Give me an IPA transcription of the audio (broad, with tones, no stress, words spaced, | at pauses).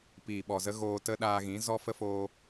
piː˨ɓɔ˨zə˦ ɣoː˧tə˦ ɗaː˧ɣĩ˨˦ zɔ˦fə˦foː˧